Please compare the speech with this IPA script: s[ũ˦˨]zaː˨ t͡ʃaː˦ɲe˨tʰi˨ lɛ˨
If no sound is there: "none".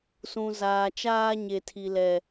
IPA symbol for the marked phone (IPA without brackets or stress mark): ũ˨